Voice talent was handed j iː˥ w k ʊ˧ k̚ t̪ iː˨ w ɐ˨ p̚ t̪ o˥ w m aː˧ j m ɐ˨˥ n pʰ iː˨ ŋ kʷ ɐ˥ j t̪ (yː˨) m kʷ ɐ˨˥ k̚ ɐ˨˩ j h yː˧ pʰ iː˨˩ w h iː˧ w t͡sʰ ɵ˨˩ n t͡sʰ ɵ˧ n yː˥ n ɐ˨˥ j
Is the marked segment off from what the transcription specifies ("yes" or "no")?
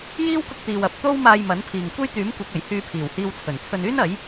yes